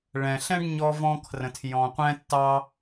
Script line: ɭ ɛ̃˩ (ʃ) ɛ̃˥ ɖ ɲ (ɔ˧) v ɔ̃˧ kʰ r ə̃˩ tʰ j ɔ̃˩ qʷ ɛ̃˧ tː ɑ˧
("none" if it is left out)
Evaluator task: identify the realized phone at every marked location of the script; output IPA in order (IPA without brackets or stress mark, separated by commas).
ɬ, ɔ˧